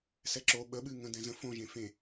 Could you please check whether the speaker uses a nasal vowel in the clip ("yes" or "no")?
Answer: yes